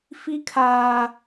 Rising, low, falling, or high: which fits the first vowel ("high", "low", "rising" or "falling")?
high